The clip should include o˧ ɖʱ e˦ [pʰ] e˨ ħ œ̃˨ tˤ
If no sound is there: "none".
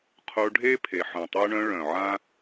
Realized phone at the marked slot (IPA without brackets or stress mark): pʰ